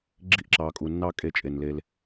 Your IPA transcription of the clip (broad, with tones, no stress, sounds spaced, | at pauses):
ɡ͡ǁ i˦˨ ʔ ǁ ɑ˨ kʼ u˨ nː ɑ˦ kʼ e˦ t͡ʃʼ e˨ n l e˦ l